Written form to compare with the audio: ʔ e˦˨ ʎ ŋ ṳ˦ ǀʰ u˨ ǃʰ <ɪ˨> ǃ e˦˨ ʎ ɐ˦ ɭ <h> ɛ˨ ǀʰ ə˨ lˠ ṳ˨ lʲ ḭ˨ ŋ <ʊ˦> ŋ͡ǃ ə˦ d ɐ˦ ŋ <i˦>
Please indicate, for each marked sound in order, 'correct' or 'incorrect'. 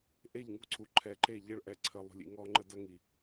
incorrect: ɛ˨, incorrect: ʔ, incorrect: ɔ˦, incorrect: i˨

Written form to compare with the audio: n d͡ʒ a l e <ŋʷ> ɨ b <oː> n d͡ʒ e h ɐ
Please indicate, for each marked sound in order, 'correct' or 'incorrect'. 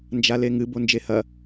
incorrect: ŋ, incorrect: o

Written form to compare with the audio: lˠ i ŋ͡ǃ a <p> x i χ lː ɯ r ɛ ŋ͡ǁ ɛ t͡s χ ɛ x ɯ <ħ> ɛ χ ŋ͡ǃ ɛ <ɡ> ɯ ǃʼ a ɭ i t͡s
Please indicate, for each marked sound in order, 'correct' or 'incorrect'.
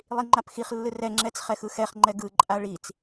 correct, incorrect: x, correct

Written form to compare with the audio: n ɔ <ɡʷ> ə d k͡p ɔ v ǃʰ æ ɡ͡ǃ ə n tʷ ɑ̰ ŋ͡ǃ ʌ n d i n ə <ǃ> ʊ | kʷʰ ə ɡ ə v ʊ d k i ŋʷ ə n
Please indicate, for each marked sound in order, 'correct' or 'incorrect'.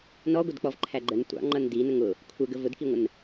correct, incorrect: ŋ

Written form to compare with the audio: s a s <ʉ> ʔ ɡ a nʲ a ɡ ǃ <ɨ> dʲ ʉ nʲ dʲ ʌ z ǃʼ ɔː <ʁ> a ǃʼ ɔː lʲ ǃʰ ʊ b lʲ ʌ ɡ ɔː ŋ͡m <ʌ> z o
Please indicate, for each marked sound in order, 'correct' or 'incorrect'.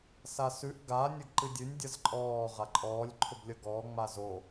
correct, correct, correct, incorrect: a

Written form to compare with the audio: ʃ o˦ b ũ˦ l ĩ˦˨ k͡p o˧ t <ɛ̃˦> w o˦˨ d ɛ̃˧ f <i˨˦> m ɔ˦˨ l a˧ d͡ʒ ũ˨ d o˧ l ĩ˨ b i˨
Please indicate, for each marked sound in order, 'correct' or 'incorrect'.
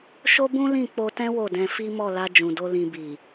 correct, incorrect: i˦

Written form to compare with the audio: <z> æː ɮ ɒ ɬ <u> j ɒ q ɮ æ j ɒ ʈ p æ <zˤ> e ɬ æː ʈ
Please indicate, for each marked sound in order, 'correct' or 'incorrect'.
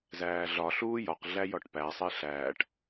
correct, incorrect: uː, incorrect: sˤ

